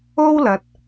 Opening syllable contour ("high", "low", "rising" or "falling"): high